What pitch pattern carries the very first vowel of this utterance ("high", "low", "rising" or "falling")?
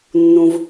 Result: low